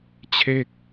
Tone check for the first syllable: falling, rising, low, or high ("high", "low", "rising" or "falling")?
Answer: falling